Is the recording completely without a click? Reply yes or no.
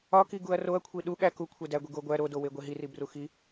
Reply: yes